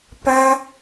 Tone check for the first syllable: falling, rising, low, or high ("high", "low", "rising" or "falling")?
high